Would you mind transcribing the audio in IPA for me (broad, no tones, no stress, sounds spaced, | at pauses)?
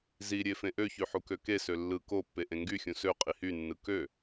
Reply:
z i ɾʲ e f ẽ ʔ ø ç y ħ u k ø k e s ø lː ɯ k o pː e ʔ ẽ ŋ ɡ y xʲ ũ s ø qʼ i h y nː ɯ k ø